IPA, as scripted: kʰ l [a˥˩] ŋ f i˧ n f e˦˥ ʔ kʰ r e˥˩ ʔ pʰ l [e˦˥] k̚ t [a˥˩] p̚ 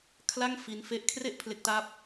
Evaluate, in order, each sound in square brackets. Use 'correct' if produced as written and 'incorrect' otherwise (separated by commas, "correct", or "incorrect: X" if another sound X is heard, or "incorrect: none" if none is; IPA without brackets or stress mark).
correct, correct, correct